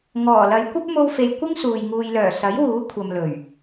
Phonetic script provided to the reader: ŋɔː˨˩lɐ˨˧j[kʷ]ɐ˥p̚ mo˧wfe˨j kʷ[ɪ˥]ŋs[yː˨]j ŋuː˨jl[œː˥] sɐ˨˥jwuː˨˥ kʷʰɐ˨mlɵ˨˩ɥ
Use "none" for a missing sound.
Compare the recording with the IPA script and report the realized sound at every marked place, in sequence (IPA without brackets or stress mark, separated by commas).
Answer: kʷ, ɪ˥, uː˨, œː˨˩